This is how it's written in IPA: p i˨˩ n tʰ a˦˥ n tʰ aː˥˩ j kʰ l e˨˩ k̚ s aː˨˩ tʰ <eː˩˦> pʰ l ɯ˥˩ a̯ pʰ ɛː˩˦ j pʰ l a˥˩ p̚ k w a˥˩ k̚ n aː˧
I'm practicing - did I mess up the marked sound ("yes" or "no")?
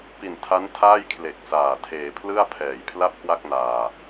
no